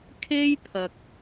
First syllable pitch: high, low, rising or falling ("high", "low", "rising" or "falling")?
high